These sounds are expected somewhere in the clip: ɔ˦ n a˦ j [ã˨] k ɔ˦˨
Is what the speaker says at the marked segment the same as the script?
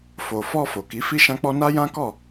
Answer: no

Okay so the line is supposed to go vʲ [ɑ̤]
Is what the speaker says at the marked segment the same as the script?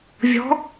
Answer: no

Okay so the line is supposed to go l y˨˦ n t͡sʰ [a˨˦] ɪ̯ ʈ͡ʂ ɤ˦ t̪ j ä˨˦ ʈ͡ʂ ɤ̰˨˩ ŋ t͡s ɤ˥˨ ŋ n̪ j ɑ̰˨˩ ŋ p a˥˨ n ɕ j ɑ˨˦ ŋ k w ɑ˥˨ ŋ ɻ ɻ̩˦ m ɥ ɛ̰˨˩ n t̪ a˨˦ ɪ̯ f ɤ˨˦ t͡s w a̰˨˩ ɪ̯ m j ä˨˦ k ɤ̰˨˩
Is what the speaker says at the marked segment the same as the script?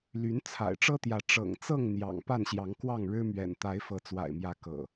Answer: no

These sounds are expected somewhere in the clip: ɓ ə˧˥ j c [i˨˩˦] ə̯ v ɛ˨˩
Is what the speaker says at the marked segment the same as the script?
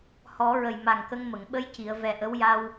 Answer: no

